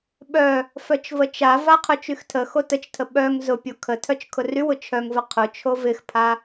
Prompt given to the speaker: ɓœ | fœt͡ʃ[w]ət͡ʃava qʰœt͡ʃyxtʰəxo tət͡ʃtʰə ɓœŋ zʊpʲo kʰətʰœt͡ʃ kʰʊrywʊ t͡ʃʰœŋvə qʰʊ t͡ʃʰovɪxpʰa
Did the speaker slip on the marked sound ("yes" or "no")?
yes